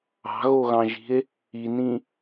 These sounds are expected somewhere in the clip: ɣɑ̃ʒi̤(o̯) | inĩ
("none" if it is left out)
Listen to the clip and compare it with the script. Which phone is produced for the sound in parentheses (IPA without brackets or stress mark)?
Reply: e̯